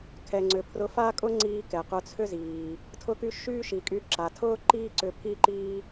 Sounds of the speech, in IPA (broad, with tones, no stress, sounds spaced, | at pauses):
kʰ ɛ˩ ŋ͡ǀ ʏ˩ pʰ r ʊ˧ f aː˥ kʼ ʊ˥ ŋ͡ǀ iː˧ k ɛ˩ q ʊ˧ t͡sʰ ʏ˥ z iː˩ | tʰ ʊ˧ k y˧ ʃ yː˥ ʃ i˩ kʼ y˧ ǁ a˩ tʰ ʊː˥ ǃ iː˥ ǀ ʏ˧ pʰ i˥ ǃ iː˥